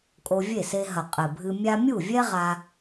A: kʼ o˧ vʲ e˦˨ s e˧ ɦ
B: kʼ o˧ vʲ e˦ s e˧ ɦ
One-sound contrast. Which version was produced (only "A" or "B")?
A